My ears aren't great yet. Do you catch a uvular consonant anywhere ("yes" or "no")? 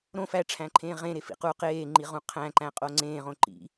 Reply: yes